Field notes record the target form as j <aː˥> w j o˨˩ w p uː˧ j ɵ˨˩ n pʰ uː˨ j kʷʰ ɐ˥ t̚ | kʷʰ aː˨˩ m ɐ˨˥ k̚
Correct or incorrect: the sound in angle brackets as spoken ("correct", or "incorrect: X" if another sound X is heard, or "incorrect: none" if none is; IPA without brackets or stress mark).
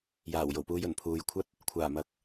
incorrect: aː˨˩